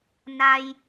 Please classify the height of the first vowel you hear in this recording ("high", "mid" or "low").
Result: low